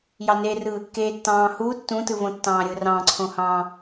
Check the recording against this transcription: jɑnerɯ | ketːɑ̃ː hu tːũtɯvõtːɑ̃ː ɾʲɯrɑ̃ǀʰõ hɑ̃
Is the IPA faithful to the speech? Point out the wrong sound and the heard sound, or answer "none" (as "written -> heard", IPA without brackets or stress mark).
none